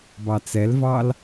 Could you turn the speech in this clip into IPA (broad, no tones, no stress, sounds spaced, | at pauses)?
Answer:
b ɑ t͡s ɛ l v ɑ l